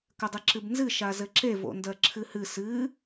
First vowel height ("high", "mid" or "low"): mid